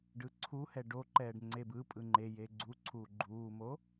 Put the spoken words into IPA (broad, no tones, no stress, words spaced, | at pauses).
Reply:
ɖɯǀʰuhɛ ɖoǃɛːɖ ŋ͡ǀebɯpʼɯ ŋ͡ǃe jeɡ͡ǀuǀʰuː ɡ͡ǃuːmo